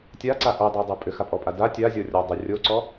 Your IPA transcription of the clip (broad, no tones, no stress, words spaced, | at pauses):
tʲaǀa ʔodˤadˤo pʼʏxapʼɔpʼa da tʲazʲɔrʲɔdˤo rʲoǀɔ